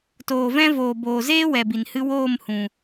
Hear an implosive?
no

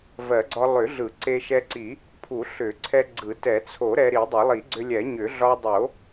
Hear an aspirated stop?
yes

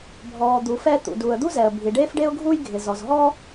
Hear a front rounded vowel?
no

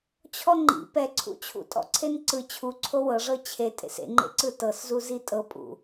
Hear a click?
yes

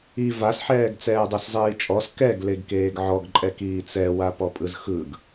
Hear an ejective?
yes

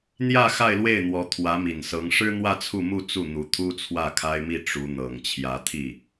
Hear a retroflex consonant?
yes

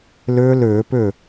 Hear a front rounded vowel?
yes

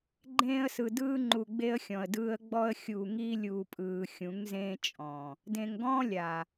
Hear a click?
yes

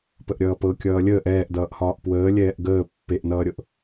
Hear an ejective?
no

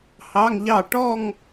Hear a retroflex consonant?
yes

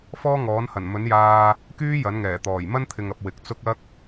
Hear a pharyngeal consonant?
no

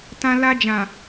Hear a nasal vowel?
yes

